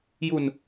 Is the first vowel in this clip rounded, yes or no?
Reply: yes